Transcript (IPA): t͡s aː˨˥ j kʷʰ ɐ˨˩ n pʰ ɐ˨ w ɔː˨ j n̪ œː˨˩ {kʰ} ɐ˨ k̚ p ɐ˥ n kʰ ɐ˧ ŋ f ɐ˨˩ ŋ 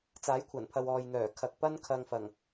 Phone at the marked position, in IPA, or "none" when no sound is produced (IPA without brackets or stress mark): kʰ